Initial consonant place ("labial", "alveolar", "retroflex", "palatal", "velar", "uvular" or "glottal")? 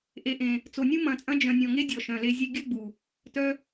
glottal